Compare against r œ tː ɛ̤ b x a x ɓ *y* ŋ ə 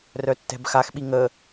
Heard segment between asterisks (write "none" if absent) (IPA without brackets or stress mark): i